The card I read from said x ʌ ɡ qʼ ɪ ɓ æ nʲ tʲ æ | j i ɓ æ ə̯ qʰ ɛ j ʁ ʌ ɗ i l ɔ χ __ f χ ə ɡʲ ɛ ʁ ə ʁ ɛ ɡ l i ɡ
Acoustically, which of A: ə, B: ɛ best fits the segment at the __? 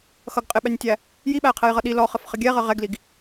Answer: A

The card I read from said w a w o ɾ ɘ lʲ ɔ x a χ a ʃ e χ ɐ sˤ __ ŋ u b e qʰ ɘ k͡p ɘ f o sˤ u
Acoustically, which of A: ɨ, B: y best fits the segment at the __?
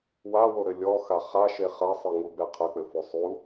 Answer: A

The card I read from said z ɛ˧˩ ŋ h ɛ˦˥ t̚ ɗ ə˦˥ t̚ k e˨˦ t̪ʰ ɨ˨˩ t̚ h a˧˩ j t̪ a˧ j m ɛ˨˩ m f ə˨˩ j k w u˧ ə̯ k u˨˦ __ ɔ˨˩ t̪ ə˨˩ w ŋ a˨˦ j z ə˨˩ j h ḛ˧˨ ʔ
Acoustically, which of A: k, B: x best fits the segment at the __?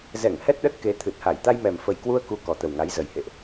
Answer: A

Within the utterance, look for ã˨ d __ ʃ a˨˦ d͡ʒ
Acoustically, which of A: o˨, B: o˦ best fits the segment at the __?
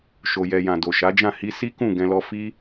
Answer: A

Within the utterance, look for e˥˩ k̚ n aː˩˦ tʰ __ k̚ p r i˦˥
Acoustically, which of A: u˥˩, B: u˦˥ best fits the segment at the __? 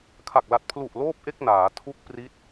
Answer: B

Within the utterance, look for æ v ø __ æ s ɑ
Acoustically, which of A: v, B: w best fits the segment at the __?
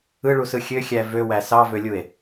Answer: B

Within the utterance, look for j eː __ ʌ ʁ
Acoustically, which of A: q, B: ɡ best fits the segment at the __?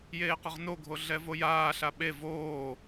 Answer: A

